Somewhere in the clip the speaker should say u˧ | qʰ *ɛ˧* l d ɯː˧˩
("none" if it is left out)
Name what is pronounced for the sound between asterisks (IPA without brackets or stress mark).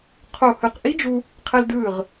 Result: ɛ˧